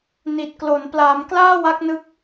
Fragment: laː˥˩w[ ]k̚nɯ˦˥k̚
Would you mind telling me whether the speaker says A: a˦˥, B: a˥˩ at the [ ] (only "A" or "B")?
A